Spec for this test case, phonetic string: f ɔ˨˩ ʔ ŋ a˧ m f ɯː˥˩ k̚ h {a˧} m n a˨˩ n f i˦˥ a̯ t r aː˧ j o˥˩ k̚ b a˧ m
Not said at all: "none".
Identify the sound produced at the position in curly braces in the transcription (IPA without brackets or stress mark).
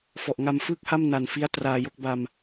a˥˩